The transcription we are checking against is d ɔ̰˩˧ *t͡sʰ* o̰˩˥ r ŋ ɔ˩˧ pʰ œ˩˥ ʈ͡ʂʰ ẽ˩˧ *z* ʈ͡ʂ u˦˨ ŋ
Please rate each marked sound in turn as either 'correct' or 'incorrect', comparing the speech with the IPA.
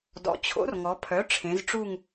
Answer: incorrect: t͡ɕʰ, correct

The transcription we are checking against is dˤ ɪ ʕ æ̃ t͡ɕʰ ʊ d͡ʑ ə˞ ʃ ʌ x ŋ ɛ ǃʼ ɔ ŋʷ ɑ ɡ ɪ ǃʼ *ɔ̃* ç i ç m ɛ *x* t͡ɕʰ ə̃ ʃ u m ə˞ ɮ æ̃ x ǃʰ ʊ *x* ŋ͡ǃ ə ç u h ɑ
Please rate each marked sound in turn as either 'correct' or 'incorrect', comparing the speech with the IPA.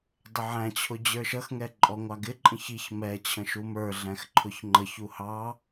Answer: incorrect: ə̃, incorrect: none, incorrect: ç

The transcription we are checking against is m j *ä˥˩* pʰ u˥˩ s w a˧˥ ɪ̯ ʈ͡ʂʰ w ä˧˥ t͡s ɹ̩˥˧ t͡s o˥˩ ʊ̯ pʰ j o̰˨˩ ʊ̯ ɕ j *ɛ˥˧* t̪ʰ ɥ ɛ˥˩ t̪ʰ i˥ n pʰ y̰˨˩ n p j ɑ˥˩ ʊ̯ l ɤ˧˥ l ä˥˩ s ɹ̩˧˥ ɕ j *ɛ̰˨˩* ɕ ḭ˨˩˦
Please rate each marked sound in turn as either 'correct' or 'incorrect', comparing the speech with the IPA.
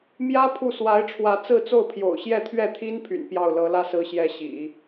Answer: incorrect: ä˥, correct, incorrect: ɛ˧˥

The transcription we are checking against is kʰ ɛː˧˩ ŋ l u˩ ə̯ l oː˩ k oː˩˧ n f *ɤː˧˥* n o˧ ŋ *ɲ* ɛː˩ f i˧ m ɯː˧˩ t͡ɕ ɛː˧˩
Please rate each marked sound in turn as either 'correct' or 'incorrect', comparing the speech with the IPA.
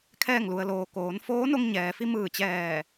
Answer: incorrect: oː˧˥, correct

